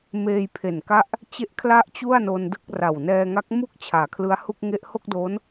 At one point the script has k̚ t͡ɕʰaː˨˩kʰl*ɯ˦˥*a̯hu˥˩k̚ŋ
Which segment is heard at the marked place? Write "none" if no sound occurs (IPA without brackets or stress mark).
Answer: ɯ˦˥